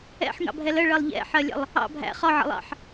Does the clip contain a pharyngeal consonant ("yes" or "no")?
yes